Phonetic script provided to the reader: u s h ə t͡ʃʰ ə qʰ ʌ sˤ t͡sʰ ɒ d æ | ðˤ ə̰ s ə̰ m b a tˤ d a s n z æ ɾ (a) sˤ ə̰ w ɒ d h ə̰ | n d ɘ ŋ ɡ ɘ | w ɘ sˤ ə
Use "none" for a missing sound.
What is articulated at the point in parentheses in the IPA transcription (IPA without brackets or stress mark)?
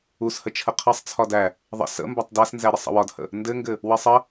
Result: ə